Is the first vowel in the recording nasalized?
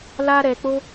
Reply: no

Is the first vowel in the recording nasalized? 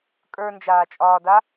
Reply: no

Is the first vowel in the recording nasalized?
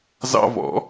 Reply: no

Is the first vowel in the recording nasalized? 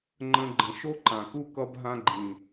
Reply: yes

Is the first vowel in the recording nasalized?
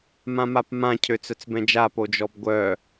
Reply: yes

